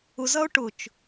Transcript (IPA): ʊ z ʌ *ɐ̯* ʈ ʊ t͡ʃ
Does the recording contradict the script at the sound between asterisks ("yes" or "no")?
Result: yes